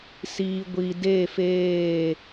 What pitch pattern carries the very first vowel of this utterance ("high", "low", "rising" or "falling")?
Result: low